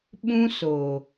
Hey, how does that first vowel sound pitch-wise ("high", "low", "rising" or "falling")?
high